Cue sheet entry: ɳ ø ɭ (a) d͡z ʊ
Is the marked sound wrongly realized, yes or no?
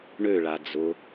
no